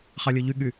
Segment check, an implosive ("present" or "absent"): present